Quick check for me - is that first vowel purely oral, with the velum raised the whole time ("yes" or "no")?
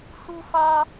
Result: yes